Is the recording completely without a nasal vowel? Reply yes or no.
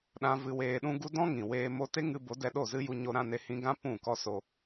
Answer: no